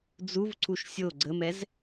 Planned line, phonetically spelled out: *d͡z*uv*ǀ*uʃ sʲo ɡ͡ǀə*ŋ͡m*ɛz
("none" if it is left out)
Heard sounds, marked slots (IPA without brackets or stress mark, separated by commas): d͡z, ǀ, m